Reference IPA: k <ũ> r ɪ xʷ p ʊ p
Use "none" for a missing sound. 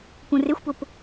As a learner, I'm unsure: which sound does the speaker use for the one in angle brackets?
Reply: ũ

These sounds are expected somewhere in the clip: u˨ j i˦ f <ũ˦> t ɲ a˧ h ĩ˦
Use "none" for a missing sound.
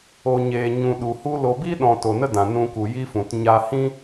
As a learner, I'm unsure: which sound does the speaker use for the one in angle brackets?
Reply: ũ˨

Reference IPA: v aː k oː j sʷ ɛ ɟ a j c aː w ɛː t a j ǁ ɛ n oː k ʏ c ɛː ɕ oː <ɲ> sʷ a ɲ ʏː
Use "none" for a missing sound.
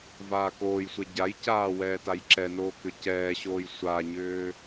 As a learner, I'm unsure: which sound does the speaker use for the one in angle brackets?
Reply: j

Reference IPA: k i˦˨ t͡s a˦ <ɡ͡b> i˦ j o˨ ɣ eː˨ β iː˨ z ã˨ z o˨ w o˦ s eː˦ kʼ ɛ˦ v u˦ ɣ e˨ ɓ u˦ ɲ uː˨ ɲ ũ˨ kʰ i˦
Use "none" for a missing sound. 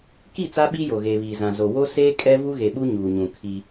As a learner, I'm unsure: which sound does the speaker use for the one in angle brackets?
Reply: ɓ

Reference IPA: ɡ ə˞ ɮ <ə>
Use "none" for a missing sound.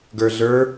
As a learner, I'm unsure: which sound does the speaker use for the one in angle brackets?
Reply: ə˞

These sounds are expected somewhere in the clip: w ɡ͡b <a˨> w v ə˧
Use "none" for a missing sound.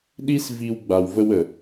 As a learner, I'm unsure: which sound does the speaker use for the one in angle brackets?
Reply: a˨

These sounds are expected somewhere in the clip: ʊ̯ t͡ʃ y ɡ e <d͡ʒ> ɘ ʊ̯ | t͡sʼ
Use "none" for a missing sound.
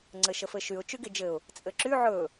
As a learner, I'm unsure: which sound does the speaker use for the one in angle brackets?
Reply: d͡ʒ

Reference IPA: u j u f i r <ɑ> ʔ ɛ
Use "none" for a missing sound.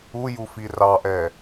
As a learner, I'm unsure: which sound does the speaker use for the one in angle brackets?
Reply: ɑ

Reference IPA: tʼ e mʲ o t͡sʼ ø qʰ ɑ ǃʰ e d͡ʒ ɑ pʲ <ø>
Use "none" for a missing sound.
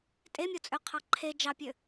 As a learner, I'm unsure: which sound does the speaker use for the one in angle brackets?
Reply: ø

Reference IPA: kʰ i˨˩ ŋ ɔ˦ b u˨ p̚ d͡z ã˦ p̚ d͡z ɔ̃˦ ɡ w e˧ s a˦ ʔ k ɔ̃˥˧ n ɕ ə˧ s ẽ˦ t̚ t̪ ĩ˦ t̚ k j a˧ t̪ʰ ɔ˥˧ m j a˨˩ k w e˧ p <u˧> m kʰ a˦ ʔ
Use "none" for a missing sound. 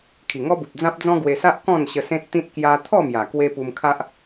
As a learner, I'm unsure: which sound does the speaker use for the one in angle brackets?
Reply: u˧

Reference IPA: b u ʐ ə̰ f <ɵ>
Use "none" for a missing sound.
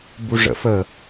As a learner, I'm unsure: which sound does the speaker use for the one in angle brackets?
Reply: ə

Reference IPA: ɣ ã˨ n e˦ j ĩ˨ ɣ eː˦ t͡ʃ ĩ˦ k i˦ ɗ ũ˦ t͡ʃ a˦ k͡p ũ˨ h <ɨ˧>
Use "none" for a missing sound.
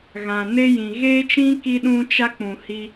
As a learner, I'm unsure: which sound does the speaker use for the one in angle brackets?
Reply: i˧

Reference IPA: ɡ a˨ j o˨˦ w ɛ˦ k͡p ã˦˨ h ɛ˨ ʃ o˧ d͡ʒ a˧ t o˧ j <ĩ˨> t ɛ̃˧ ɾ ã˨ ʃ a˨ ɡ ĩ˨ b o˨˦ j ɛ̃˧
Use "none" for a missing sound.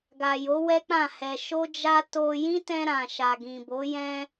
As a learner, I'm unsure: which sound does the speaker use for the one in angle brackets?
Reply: ĩ˦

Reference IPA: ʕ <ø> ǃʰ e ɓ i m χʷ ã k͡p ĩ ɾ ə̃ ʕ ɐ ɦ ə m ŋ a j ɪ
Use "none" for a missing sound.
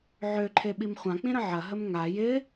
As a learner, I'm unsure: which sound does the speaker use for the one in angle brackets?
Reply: ø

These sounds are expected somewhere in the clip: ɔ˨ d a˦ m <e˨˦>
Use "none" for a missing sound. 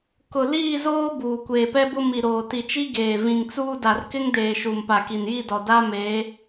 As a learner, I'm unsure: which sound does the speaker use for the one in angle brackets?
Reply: e˨˦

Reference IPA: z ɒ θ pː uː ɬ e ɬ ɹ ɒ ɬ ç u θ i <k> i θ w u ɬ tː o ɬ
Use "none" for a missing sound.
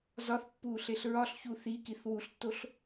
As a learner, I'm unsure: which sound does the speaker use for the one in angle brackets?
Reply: k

